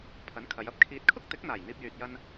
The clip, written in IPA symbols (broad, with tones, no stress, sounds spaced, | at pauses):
pʰ ɐ˨˥ n kʰ ɐ˨˧ j ɐ˧ p̚ kʰ iː˨˥ t̚ kʰ ʊ˥ k̚ t̪ ɪ˨˥ k̚ n̪ aː˨˩ j n̪ iː˧ p̚ j yː˨ t̚ j ɐ˧ n